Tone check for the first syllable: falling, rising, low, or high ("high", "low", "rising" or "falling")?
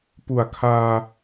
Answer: low